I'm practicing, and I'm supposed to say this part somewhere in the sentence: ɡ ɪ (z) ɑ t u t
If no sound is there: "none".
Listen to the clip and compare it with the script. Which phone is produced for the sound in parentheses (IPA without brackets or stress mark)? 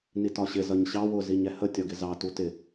z